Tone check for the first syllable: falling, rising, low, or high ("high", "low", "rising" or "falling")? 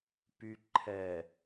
low